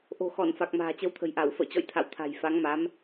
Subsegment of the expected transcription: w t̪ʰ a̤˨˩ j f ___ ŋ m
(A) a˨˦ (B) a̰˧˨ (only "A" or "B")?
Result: A